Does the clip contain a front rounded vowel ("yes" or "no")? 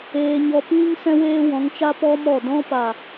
no